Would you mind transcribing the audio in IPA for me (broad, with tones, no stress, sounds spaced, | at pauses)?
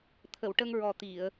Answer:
t̪ʰ ə˨˩˨ w ʈ ə˧ ŋ ɹ ɔ˨˩ t̪ i˨˩˨ ə̯